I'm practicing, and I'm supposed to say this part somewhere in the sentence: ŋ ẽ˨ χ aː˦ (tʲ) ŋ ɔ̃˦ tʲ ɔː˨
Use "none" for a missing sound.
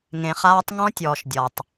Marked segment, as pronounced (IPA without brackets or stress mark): tˤ